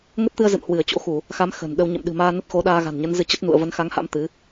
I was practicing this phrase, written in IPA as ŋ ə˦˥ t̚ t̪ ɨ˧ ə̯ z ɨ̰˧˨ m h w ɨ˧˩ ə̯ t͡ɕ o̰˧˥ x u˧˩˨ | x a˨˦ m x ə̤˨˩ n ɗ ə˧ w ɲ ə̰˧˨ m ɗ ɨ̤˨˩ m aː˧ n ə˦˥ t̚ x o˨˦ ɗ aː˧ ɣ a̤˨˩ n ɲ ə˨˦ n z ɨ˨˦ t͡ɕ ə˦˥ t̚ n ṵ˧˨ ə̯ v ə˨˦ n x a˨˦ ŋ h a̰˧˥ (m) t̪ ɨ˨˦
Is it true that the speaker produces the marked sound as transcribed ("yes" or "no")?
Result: yes